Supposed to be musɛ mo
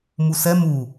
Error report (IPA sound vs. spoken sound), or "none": o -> u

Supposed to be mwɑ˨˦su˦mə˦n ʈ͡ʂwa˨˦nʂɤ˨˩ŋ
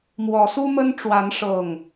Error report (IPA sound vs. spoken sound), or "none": ɑ˨˦ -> ɔ˨˦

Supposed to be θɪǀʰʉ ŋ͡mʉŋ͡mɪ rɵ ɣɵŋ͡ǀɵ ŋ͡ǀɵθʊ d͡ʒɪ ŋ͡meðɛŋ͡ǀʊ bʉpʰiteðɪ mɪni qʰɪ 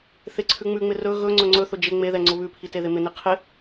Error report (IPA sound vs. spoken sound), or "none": b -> β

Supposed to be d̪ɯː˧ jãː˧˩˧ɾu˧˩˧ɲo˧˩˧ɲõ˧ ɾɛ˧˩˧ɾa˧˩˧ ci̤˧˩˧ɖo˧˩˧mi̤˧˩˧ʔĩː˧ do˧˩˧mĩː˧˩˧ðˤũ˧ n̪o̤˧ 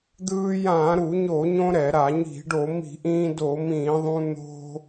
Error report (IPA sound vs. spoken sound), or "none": c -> ɲ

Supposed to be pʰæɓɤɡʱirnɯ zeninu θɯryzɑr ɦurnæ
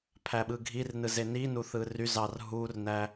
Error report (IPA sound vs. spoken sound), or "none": ɤ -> ɯ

